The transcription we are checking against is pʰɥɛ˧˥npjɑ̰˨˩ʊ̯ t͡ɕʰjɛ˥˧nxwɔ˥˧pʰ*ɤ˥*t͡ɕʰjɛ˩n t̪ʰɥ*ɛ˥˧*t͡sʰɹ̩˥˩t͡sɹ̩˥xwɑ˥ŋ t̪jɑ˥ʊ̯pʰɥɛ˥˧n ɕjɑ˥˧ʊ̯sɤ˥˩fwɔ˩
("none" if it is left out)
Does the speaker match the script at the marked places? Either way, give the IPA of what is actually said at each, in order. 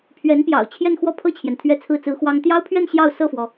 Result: ɤ˥˩, ɛ˥˧

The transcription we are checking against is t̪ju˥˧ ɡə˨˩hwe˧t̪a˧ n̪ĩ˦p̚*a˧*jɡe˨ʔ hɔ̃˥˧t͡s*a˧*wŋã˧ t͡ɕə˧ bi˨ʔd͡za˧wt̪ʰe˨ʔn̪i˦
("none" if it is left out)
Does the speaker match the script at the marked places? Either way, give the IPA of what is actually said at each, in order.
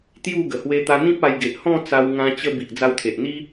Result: a˧, a˧

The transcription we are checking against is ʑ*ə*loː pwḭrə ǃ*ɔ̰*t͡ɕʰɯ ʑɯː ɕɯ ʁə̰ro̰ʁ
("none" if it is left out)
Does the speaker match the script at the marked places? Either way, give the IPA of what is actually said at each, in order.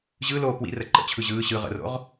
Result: ɯ, ə̰

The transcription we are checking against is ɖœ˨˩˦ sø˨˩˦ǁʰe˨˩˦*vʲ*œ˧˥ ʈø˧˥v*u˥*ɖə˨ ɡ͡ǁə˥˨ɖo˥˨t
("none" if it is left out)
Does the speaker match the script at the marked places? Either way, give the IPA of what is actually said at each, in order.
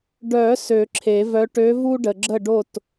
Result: v, u˥

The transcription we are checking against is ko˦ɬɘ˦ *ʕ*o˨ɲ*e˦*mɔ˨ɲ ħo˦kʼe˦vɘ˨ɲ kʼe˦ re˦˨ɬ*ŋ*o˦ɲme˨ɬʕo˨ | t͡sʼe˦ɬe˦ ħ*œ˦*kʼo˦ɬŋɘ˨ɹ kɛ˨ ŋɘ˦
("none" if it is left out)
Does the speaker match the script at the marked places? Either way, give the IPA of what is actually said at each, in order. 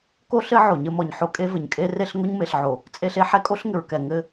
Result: ʕ, ɘ˦, ŋ, ɛ˦

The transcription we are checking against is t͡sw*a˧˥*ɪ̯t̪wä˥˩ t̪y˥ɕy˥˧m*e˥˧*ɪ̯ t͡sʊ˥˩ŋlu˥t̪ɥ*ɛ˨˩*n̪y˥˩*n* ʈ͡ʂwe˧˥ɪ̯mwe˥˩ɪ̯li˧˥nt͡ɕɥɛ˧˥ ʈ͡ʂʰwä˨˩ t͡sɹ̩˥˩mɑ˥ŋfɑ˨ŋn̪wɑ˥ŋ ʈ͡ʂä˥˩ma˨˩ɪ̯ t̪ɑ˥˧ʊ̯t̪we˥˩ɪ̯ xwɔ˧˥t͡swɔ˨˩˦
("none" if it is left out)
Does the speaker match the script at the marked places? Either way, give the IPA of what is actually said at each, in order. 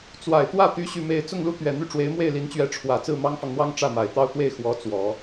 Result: a˨˩, e˥˧, ɛ˨˩, none

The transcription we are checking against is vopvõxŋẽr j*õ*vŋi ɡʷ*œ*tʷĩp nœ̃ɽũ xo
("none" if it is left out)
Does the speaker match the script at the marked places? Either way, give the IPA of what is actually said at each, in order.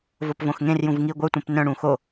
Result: ũ, œ

